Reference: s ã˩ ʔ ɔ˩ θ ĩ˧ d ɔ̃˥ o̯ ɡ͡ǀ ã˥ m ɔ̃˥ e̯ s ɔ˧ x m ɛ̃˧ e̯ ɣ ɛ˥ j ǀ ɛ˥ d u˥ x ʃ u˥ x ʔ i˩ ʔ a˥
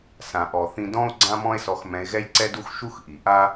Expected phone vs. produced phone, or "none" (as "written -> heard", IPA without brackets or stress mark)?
none